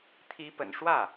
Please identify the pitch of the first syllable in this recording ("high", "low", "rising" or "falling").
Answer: rising